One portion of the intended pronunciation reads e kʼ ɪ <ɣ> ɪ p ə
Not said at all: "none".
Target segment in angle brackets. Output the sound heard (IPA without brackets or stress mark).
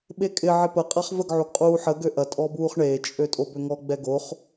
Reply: ʕ